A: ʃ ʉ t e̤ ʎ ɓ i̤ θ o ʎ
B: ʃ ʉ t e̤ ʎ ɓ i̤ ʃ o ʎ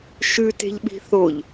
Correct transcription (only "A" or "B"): A